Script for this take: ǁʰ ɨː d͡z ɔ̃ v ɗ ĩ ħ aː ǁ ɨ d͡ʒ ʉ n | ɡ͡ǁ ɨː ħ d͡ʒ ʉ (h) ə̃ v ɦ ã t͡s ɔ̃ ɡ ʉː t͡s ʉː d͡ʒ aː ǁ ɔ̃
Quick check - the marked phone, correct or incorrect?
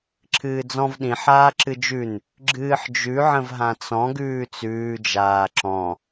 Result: incorrect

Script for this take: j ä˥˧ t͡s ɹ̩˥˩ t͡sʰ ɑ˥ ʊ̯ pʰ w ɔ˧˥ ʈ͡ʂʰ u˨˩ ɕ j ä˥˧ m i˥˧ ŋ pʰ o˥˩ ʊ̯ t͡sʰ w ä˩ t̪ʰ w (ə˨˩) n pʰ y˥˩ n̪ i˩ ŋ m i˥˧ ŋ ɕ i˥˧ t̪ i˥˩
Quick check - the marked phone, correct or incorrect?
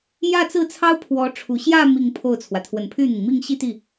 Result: correct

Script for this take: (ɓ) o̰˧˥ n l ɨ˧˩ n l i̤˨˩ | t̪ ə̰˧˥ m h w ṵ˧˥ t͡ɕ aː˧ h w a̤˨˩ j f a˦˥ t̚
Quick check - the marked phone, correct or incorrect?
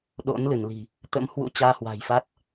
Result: incorrect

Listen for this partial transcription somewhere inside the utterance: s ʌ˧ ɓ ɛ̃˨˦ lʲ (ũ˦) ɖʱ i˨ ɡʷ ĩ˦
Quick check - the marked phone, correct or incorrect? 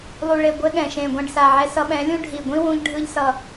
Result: correct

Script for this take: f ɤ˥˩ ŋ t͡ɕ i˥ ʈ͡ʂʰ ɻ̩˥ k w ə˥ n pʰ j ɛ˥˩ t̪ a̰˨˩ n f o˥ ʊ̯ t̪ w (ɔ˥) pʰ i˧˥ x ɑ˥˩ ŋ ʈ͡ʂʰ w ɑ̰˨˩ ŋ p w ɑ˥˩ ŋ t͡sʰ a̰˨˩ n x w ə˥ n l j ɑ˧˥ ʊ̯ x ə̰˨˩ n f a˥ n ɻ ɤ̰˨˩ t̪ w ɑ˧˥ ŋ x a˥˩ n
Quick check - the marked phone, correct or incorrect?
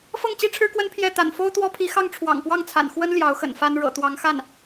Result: correct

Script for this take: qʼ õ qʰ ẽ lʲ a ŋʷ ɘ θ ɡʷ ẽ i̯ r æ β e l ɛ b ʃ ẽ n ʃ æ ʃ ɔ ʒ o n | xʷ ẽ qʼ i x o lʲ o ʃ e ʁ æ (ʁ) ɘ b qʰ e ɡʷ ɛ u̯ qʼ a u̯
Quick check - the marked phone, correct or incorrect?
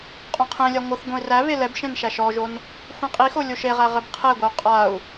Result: correct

